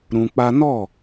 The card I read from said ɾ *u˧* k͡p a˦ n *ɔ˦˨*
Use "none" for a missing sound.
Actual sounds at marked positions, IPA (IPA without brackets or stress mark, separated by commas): ũ˧, ɔ˦˨